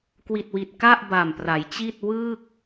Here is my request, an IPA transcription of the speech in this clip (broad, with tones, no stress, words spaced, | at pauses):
kwi˨˩t̚wi˨˩t̚ ka˥˩ʔ ba˨˩mpra˩˦jt͡ɕi˥˩t̚ wɯː˥˩k̚